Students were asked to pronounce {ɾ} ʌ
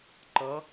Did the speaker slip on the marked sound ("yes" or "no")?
yes